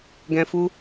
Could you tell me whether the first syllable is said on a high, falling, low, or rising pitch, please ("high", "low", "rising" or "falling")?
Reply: high